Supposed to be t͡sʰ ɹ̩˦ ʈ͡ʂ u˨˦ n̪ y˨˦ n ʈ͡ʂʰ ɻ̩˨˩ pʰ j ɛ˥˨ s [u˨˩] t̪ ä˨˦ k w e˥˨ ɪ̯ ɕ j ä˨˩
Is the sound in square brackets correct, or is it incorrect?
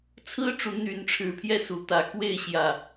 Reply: correct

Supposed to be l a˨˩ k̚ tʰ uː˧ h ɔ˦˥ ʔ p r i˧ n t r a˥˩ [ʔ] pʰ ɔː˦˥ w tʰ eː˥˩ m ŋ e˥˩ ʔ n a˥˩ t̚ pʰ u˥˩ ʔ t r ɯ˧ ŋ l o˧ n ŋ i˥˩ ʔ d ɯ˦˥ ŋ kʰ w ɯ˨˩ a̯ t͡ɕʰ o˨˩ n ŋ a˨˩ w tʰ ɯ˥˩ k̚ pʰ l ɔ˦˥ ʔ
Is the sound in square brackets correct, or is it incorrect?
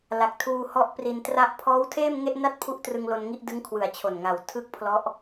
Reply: correct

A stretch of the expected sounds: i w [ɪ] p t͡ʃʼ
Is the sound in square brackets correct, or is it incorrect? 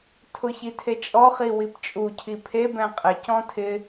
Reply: incorrect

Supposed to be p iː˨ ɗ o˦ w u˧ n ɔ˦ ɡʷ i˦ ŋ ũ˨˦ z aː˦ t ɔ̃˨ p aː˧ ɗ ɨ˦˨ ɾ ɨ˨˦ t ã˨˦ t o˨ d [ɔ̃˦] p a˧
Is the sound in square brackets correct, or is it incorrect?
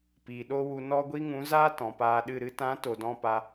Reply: incorrect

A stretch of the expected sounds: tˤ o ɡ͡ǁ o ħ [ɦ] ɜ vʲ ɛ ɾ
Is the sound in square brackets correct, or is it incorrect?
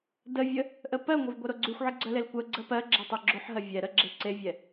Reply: correct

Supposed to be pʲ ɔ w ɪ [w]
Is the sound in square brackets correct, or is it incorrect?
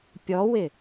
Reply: incorrect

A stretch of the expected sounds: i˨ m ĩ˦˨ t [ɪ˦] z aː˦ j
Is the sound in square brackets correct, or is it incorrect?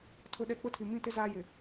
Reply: correct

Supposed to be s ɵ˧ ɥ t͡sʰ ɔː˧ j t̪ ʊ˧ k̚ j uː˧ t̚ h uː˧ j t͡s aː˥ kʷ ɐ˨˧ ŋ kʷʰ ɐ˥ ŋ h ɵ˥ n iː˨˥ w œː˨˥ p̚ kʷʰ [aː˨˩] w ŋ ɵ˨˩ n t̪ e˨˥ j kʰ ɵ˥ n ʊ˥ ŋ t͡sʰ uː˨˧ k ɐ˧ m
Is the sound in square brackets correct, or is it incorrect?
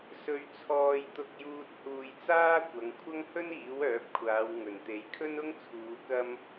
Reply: incorrect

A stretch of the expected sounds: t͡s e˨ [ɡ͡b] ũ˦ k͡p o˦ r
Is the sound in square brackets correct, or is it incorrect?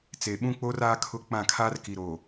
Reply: incorrect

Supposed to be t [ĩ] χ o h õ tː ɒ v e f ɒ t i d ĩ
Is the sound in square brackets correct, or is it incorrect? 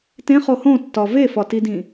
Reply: incorrect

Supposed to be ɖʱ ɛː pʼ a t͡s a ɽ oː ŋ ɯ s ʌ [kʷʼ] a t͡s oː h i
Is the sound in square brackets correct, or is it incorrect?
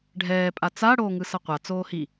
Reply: incorrect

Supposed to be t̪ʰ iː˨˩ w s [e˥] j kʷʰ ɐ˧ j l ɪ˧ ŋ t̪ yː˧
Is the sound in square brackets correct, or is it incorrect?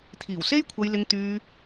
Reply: correct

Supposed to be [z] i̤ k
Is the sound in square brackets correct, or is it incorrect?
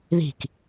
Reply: incorrect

